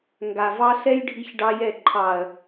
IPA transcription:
ŋ ɡ a˨ v ɑ˦ ɬ ɛ˦ j ɖʱ i˦ ç ɖ ɑ˦ j ɛ˦˨ ǃʰ ɑ˨ ɐ̯

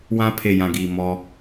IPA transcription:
w ã˦ pʰ e˨ j ã˨ ɡ iː˨ m ɔ˦

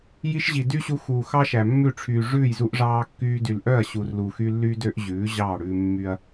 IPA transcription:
j i˧ ʃ ʑ i˨ d y˦ ɕ u˧ x uː˨ x ɑ˦ ʃ æ˨ mː ʉ˦˨ ʈ͡ʂʰ yː˨ ʐ ʉː˦˨ j z u˧ ʔ ʐ ɑː˧ kː yː˧ d y˨ l ʔ œ˦˨ ɐ̯ ɕ u˨ r l u˨ x y˧ lː y˦ d ø˦ ʔ ʑ ʉː˨˦ ʑ ɑː˦˨ ɽ ʉː˧ mː y˦ ɐ̯

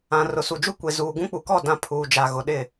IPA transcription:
ã˨ r ʊ˨ s u˨ d͡ʒ u˦ kʷ e˨ z uː˨ ɡ ũ˦ k͡p u˨ k ɔ˦˨ d ã˦˨ pʰ uː˨ d͡ʒ a˨ ɣ ʊ˨ ɗ ɪ˦˨

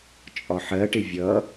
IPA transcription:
t͡ʃʼ ɒ ħ ɜ ʈ ɪ vʲ ʌ

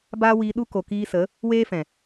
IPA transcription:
b aː˦ w iː˧ ɗ u˦ k o˨ k iː˧ s ə˨˦ | w eː˦ f ɛ̃˨

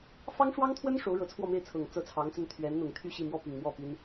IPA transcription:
f ɑ˥ ŋ ʂ w ɑ˥ ŋ t̪ʰ w ə˥ n ʂ o˧˥ ʊ̯ ɻ ɤ˧˥ t͡sʰ w ɔ˥˧ m e˥˩ ɪ̯ t͡sʰ ɤ˨˩ ŋ t͡s ɤ˥ t͡sʰ ɑ˧˥ ŋ t͡s ə˥ n t̪ʰ ɥ ɛ˧˥ n n̪ ʊ˨˩ ŋ t̪ʰ y˥˧ ɕ i˥˧ m w ɔ˥˩ p i˨˩ ŋ m w ɔ˥˩ p i˥ n

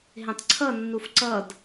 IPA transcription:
ɦ ẽ tˤ ǀʰ ʌ nː u f ǀ ʌ d

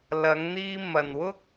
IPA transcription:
l ɐ˨˧ ŋ n̪ iː˧ m ɐ˨ n w ʊ˥ k̚

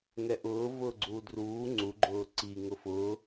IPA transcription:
ŋ ɛ ʔ ʊː v ʊː ɡ͡ǀ uː d r uː ŋ͡ǀ u ɡ͡ǃ ʊː ǀ i ŋ ʊ f ʊː

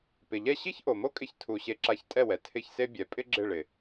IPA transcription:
p ɪ˩ ʎ ɛ˥˩ ɕ i˥ ç ʔ o˩ m o˥ kʼ ɪ˧ ç tʰ u˩ ɕ e˧ ǁ a˧ ç tʼ ɛ˥˩ w ɛ˩ tʰ ɪ˥˩ ç s e˥ bʲ ɛ˩˥ pʼ ɪ˥ ɡ͡ǁ ɪ˥˩ ɭ ɪ˩

